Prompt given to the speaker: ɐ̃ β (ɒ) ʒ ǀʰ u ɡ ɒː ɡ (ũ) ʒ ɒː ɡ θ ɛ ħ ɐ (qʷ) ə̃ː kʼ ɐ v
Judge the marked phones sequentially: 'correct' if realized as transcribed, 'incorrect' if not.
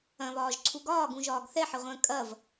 incorrect, correct, incorrect

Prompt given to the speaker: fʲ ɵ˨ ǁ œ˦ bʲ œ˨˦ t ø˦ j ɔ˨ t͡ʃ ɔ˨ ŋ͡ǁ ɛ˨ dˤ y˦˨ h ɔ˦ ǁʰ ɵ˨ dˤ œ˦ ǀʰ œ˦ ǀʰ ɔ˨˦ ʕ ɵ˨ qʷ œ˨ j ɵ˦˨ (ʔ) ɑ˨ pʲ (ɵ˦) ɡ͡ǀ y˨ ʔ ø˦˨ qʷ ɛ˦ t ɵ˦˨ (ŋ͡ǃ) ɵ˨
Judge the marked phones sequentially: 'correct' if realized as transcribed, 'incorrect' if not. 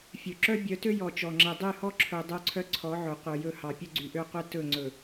incorrect, correct, incorrect

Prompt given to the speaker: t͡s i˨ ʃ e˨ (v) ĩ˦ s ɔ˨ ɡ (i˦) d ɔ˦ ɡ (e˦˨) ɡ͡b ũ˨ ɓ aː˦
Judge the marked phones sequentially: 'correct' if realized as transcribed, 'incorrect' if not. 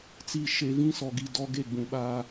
correct, incorrect, correct

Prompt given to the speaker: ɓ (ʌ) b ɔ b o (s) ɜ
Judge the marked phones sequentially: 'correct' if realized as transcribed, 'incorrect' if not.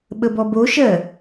incorrect, incorrect

